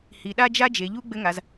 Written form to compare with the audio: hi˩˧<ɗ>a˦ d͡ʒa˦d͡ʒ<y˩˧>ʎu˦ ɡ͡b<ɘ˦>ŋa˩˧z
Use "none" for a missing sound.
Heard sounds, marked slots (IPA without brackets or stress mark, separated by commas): ɗ, e˩˧, ɘ˦